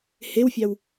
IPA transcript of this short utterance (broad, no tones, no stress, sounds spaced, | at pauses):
h e w fʲ ɑ w